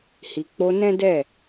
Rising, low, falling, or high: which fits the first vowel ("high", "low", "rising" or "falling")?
low